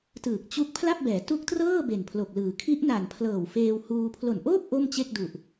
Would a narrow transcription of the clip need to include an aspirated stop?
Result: yes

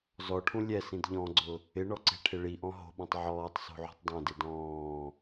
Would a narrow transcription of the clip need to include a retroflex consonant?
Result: yes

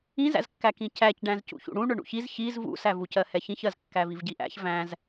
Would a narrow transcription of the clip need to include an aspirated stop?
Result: no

